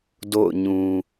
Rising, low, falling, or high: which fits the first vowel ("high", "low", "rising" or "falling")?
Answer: falling